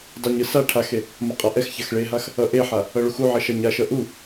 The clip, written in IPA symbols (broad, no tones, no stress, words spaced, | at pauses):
dˤuɲɯ sa ʈʰaxe | mʌqʼaʔɛxçax ɭeɦax | ʌʔeħa | ʌɭuxuʕʌ ʃaɲaʃʌ ʔu